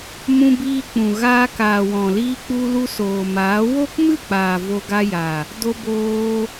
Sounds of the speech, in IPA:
m ũ˧ b iː˧ k͡p ũ˨ ɣ aː˧ k aː˨ w ɔ̃˨ l iː˧ k͡p u˧ l u˧ s oː˨ m aː˨˦ w o˦ k m ɨ˦˨ k͡p aː˨ v o˧ ɡ a˧ j a˨ | d o˧ b oː˧

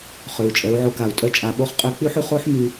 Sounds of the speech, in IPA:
χ ø˩ u̯ t͡ʃʼ ɛ˩˧ u̯ ʕ o˧ k a˩ u̯ tʼ œ˧˥ t͡ʃʼ a˩˧ ɓ o˧˥ χ qʼ ø˧˥ k͡p y˥ ħ y˧ χ o˥ ħ m y˧

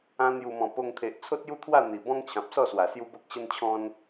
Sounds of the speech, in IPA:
ã˧ n̪ j u˨˩ m ɔ̃˨˩ p o˧ ŋ t̪ʰ e˨ ʔ t͡sʰ o˦ t̚ j u˥˧ t̪ʰ w a˥˧ n̪ i˨˩ b ɔ̃˦ ŋ t͡ɕʰ ã˨ p̚ s ɔ˥˧ s w a˨˩ s j u˦ b o˦ k̚ ɕ ə˦ n t͡ɕʰ ɔ̃˦ n

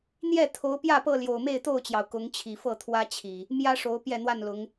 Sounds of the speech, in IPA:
n̪ j ɛ˥˨ t̪ʰ o˨˦ ʊ̯ p j ä˥˨ p ɤ˥˨ l j o˨˩ ʊ̯ m e˥˨ ɪ̯ t̪ o˥˨ ʊ̯ t͡ɕ j ɑ˩ ʊ̯ k ʊ˨˦ ŋ t͡ɕʰ i˨˩ f ɤ˥˨ t̪ʰ w ä˦ t͡ɕʰ i˨˩ | m j ä˦ ʂ o˨˦ ʊ̯ p j ɛ˥˨ n̪ w a˥˨ n l ʊ˨˦ ŋ

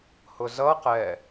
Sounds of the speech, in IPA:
h ʊ z ʌ q ɛ

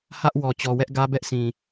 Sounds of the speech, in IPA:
h ä˦ ʔ w ɔ˨ t͡ɕ ɔ˨ w ɛ˦ ʔ ɡ ä˦ b ɛ˦ ʔ s ĩ˨

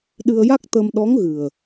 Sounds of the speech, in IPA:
ɗ ɨ˧ ə̯ j a˦˥ k̚ t̪ ə˧ m ɗ ɔ˧˥ ŋ ɣ ɨ˨˩ ə̯

